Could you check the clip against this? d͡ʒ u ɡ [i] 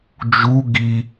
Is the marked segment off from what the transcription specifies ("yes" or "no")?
no